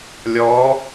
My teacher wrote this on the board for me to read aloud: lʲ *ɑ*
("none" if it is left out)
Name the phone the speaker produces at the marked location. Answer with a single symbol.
ɔ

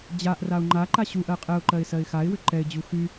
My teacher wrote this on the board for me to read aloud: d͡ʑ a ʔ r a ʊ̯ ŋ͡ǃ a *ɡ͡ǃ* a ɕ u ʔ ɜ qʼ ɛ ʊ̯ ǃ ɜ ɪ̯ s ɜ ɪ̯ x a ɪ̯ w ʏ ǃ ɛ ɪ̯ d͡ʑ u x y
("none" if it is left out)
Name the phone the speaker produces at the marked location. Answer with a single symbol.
ǃ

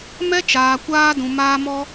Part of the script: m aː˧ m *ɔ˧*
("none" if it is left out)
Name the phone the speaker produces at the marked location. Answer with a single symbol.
ɔ˧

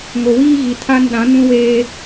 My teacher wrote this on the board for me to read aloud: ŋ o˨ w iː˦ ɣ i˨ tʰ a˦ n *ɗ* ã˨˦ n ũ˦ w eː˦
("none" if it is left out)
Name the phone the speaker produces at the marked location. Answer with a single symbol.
ɗ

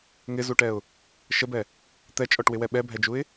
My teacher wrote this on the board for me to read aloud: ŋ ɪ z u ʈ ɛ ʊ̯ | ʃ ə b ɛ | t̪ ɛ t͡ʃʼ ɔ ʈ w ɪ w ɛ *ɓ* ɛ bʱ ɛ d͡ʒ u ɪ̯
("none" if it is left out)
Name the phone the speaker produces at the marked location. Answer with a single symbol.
ɓ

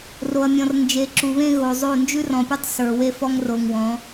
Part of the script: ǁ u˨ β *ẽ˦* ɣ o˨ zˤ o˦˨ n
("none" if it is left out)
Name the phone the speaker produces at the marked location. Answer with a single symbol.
ẽ˦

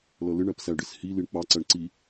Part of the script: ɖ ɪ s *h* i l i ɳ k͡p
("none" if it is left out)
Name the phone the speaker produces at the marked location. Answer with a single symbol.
h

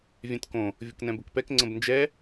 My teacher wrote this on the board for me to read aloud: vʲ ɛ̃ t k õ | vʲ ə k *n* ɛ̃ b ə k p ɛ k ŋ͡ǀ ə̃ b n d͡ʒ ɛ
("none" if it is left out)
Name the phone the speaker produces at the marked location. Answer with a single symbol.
n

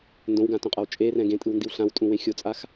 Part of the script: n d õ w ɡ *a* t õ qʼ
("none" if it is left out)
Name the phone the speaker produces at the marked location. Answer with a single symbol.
ã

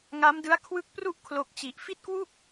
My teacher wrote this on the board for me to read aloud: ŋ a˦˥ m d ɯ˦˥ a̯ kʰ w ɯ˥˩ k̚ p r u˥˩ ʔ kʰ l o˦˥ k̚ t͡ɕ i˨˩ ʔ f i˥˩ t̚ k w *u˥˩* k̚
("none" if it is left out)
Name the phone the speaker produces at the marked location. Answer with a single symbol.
u˥˩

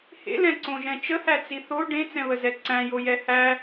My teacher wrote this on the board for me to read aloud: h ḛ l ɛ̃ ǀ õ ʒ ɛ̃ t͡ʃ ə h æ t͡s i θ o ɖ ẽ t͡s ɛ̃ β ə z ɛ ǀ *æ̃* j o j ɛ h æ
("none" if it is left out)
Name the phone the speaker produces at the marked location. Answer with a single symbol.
æ̃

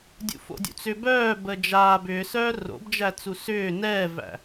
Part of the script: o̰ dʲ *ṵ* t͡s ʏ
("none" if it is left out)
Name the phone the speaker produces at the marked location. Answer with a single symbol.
ṵ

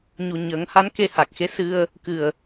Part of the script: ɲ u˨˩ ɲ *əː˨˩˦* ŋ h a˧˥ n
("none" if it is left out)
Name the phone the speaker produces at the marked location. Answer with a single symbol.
əː˨˩˦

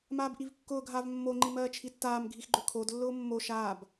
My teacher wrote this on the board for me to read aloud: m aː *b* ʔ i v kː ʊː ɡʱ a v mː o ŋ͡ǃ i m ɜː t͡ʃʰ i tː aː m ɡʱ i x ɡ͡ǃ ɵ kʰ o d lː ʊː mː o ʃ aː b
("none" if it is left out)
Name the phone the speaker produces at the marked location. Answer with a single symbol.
b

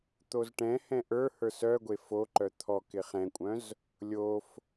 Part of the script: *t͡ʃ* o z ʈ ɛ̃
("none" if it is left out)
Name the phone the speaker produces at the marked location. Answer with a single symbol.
t̪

